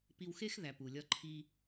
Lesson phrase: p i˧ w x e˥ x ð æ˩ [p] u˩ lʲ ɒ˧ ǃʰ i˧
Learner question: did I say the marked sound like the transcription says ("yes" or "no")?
yes